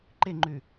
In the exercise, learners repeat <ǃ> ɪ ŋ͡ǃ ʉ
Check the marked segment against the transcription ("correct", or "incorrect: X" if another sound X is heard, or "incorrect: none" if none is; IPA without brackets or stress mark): correct